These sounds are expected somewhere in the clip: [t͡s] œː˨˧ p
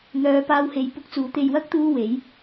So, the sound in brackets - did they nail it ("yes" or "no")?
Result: no